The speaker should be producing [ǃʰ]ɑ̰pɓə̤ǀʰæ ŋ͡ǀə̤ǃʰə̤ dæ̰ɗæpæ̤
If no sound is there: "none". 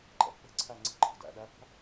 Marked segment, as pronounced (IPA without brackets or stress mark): ǃ